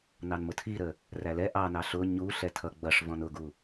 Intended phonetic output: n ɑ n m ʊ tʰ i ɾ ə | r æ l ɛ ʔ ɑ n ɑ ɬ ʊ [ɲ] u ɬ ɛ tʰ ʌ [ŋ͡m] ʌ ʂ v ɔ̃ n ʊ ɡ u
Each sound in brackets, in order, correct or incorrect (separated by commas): correct, incorrect